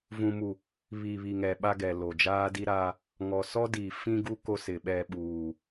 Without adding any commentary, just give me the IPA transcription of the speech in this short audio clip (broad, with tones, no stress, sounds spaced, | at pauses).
v ũ˨ m u˨ | β i˨ β i˨ ŋ ɛ˨ ɓ a˦ ɡ ɛ˨ l o˨ d͡ʒ aː˦ d i˦ ɾ aː˦ | ŋ ɔ˨ s ɔ˦ d i˨ f ĩ˦ ɡ u˦ k o˦ s ɪ˨ ɓ ɛ˦˨ ɓ uː˨